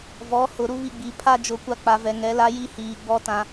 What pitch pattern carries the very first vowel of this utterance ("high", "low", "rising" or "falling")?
rising